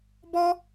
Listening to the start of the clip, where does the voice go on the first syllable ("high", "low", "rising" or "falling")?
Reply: high